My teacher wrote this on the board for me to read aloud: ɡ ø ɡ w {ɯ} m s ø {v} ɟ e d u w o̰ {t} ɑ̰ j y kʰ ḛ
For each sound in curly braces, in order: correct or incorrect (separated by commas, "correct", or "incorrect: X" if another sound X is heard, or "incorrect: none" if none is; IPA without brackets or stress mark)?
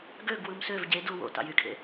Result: correct, correct, correct